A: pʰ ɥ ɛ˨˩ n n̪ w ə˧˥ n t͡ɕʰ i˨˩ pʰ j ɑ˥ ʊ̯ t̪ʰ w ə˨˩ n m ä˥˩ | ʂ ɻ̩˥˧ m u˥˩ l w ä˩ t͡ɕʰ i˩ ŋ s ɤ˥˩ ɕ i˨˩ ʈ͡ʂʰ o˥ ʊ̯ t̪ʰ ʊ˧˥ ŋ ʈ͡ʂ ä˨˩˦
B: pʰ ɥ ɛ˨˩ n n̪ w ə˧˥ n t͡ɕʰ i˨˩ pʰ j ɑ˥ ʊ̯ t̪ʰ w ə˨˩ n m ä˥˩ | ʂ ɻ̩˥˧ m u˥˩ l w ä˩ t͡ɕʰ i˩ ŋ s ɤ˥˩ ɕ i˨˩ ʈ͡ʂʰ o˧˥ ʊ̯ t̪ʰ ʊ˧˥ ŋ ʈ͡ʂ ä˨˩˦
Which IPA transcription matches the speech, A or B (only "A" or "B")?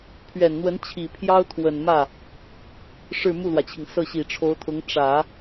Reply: B